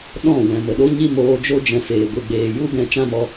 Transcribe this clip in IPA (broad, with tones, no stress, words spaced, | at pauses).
ɗɔ̃˦˨ wɛ̃˨mə˨ɗo˦ɲi˦ moː˧d͡ʒo˦ d͡ʒɛ̃˧feː˨ ɡʷi˨ɡ͡beː˨ju˦ɡɛ̃˧ t͡ʃã˦mɔ˧